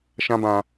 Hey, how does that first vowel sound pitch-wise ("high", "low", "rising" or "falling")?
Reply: high